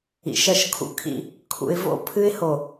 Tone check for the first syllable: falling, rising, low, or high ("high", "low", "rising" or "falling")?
low